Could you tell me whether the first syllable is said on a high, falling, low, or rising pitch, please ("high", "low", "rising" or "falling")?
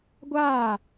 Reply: falling